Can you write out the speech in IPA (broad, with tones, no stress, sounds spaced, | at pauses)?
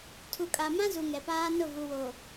tʰ u˨ kʼ a˨ m ã˦ z u˨ ŋ ɛ˨ p aː˦ n ʊ˦˨ v u˨ w o˨